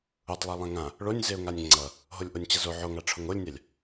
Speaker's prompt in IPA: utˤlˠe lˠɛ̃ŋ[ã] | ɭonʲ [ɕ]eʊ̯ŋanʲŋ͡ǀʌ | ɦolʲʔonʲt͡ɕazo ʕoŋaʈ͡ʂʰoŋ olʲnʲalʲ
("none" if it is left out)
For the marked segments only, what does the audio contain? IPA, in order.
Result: ã, z

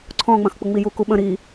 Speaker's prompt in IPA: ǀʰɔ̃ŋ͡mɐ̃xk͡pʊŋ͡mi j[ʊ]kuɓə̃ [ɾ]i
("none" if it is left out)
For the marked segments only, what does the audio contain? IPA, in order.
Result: u, ɾ

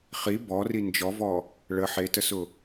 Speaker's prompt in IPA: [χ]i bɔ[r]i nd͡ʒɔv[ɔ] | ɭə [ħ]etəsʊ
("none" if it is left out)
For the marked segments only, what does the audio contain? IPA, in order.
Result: χ, r, ɔ, ħ

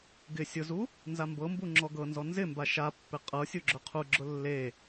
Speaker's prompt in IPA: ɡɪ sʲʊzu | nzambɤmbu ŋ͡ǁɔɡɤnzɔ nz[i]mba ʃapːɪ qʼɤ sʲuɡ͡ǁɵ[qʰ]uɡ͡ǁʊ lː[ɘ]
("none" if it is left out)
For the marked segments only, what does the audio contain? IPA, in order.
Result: ɪ, qʰ, e

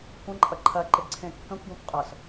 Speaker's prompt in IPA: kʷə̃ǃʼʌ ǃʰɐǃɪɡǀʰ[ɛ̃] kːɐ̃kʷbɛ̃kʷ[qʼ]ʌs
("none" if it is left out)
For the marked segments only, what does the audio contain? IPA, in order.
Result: ẽ, qʼ

